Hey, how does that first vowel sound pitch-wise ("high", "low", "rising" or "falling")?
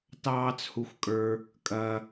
high